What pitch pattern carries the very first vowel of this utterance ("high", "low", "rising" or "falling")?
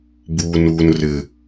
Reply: low